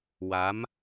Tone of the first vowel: rising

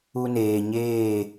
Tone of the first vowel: high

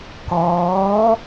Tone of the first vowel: rising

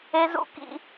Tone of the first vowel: high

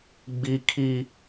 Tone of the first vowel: high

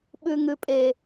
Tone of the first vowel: low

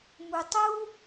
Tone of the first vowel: low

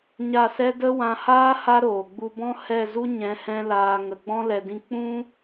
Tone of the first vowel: falling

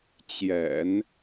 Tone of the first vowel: low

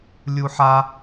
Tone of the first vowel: high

